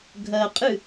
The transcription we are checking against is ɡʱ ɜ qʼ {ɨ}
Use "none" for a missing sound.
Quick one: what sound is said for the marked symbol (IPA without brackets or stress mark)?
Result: ɨ